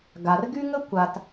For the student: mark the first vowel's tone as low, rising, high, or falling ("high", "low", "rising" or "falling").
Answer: low